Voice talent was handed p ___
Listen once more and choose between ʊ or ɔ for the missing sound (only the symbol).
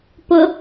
ʊ